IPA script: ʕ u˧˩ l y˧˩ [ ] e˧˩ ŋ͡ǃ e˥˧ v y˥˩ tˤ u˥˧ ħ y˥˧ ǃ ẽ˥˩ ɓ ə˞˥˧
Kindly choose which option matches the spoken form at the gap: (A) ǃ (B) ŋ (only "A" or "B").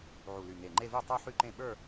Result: B